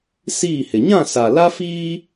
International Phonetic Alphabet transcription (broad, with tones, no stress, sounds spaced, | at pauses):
s iː˦˨ h ɪ˨ ɲ ã˦˨ s a˨ l a˦ f iː˦